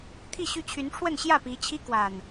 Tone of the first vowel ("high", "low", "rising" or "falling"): falling